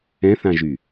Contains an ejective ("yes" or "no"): no